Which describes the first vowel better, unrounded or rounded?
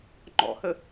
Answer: rounded